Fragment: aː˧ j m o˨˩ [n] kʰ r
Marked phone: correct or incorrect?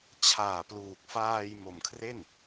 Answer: incorrect